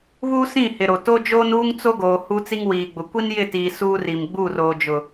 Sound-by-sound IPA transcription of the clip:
β uː˦ s ĩ˦˨ h ɪ˨ ɾ o˨ t o˦ d͡ʒ oː˦ n uː˦ ŋ t͡s o˦ ɡ oː˨ h u˦ t͡s i˦ ŋ w iː˨ ɡ͡b ʊ˨ kʷ i˦ n j ɪ˦˨ t iː˨ s uː˦ r i˨ m ɡ͡b u˦˨ r oː˨ d͡ʒ ʊ˨

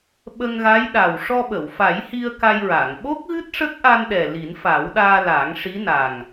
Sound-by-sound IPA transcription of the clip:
ɓ ə˧ ŋ ɣ a˧˥ j ɗ a˨˩ w ʂ ɔ˧ ɓ ə˨˩˨ w f a˨˩˦ j h i˧ ə̯ k a˧ j ɹ a˨˩˨ ŋ ɓ o˦˥ k̚ ɣ ɨ˦˥ t̚ ʂ ə˦˥ k̚ ʔ a˧ n ɗ ɛ˨˩ l i˨˩˦ n f a˨˩˦ w ɗ aː˧ l aː˨˩˦ ŋ ʂ i˧˥ n a˨˩ ŋ

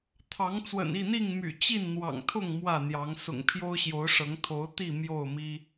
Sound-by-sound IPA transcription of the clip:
t̪ʰ ɑ˨˦ ŋ t͡s w ə̰˨˩ n i˥˨ n̪ i˥˨ ŋ m y̰˨˩ t͡ɕ i˥˨ n n̪ w ɑ̰˨˩ ŋ t̪ʰ ʊ˥˨ ŋ m w ä˥˨ n̪ j ɑ˨˦ ŋ s ʊ̰˨˩ ŋ pʰ j o˦ ʊ̯ ɕ j o˨˦ ʊ̯ ʂ ɤ˨˦ ŋ t̪ʰ o˨˦ ʊ̯ t̪ i˥˨ m j o˥˨ ʊ̯ m i˦

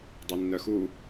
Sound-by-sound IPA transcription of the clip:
dˤ i nː œ x u

